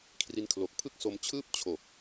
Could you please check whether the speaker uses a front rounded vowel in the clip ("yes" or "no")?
no